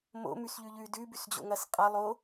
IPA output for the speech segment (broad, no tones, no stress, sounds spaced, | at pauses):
m o̰ m ʉ s ʎ ʉ ʎ ʉ d ʉ b ʉ s d͡ʑ o̰ ŋ ɐ s qʼ ɐ lˠ o